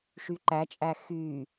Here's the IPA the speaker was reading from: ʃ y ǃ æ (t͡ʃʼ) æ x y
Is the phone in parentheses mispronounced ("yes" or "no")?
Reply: no